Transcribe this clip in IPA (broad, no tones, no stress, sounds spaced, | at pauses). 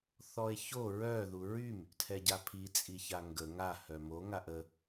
θ ɔ e̯ ç o ɹ œ ð u ɹ y m | tʰ ɛ ɟ a pʰ i t͡sʼ i ç a ŋ ɡ ə ŋ a h œ m o ŋ a ʔ ə